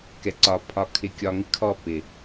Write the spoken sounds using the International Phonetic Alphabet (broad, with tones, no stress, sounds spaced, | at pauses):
k ɛ˨ ǀ ɒ˨ pʰ ɒ˨ kʰ ɪ˨ kʲ ɒ˨ ŋ ɪ˦ kʰ ɔ˦˨ p ɪ˨